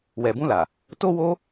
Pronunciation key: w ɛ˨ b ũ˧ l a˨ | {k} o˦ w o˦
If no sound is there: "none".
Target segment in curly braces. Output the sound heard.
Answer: t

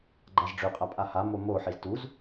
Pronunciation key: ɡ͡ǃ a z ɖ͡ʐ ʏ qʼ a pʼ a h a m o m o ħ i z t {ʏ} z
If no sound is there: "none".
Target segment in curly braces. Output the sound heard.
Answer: u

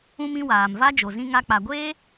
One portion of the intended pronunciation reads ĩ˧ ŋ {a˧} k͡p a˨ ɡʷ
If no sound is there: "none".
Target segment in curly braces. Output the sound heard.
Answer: a˧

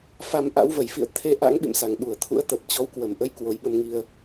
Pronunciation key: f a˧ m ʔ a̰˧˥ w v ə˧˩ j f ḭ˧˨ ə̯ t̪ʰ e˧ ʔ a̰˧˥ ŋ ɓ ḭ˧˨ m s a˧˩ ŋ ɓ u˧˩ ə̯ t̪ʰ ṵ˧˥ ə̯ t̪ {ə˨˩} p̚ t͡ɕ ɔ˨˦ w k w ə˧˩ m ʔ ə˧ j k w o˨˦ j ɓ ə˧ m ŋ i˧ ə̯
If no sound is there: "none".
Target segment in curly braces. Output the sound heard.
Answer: ə˨˩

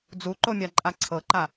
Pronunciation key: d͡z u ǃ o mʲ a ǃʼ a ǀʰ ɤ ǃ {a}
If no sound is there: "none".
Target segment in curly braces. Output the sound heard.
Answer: a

